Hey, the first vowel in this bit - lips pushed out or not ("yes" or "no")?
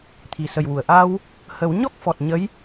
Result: no